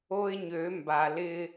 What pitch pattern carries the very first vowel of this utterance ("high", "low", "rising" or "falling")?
high